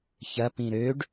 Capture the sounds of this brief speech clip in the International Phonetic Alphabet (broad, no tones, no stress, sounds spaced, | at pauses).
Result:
ç ɐ p ĩ ɾ ø ɖ